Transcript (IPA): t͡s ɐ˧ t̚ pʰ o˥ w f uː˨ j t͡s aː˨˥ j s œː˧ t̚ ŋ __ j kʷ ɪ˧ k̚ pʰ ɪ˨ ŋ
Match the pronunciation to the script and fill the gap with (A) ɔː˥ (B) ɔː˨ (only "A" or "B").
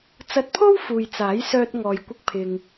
B